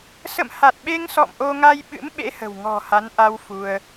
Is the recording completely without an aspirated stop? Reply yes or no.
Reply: yes